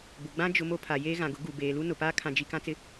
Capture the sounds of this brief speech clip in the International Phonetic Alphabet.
b ʊ˨ ɡ͡b ã˦ d͡ʒ ʊ˨ m o˦ pʰ a˨ j eː˦ ɣ ã˨ ɡ ʊ˨˦ ɡ u˨ b eː˨ l u˦ n ʊ˨ p aː˦ kʰ ã˨ d͡ʒ i˨ k ã˦ t͡s ɪ˦

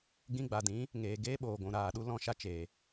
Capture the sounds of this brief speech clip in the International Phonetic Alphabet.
ɡ ĩ˧ ɡ͡b a˨ d ĩ˨˦ | ŋ eː˨ ɡ eː˦ ɓ oː˨ ɡʷ ũ˨ ɾ aː˨ ɗ u˦ l ɔ̃˧ ʃ a˦ t͡ʃ eː˨

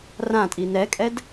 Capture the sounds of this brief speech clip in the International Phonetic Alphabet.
r ã tʼ i n ɛ kʼ ɛ d

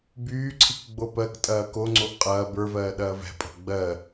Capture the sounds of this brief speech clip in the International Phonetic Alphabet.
b yː ǀʰ i k ɡ͡b o p ɜ k tʼ ɐː k o ŋ͡ǀ o ʔ qʼ ɐː b ə˞ v ɜː ɗ ɐː v ɛ̤ pʼ o̤ ɡ͡b ɜ

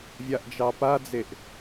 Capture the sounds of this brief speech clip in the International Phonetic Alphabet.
vʲ a ʔ d͡ʒ ɑ p a d͡z e ʔ

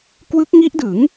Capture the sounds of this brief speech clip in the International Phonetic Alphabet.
k w ɯ˦˥ k̚ ŋ i˦˥ ʔ d ɯ˩˦ ŋ

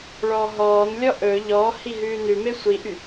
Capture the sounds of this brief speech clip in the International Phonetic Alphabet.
ɭ ɔː ɦ ɔː n lʲ ɔ ʔ ɵ ʎ ɔ h i ɦ ʉː n ʉ m e sʷ i ʔ y

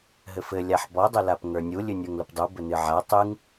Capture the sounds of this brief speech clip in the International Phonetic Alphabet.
ɦ ɘ f ɘ lʲ a ħ b ɔ dˤ ɘ l a p ŋ ə˞ nʲ u lʲ ɨ nʲ ə˞ ŋ l ə p dˤ u b ɘ n ɨ ʕ a tˤ ɨ ŋ

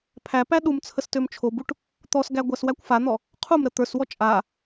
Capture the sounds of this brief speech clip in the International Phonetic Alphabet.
pʰ æ p æ ɗ u m t͡sʰ ə s t ø m t͡ʃʰ o b u ʈ | t̪ ɔ s ɡ æ ɡʷ æ s w æ kʷ f a n̪ ɔ | qʰ u m ɾ ə t̪ ə˞ s w ɔ t͡ʃʼ a

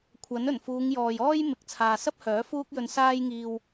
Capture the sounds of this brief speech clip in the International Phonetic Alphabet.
kʷʰ ɐ˨˥ n ɵ˨˩ n f uː˨˧ ŋ j ɔː˨ j ɔː˥ j m ɪ˨˥ k̚ t͡sʰ aː˨ s ɐ˥ p̚ h œː˨˥ f uː˥ k̚ j ɵ˧ n s aː˧ j ŋ iː˨ w

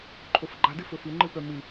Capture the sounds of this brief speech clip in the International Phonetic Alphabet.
ǃʰ o f ɡ͡ǃ a d ɨ f ɵ f ɨ ŋ͡ǃ ɨ p œ m ɨ

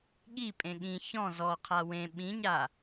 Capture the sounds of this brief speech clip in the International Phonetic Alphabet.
ɠ i pʼ ẽ ɠ ĩ ç ɔ̃ z ɔ qʰ a w ẽ ɓ ĩ ɲ a

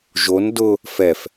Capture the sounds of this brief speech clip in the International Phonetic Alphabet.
ʒ o n d ʊ | f ɛ f

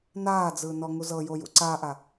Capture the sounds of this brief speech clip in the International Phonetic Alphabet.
n aː d͡z ɯː n ɔ ŋ u z ɤ j o j ṵ ǀ a ʔ a

